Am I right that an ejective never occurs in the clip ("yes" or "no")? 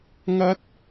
yes